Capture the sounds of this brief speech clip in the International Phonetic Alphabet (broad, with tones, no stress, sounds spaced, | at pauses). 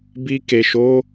b i˧ k e˨ ʃ o˨˦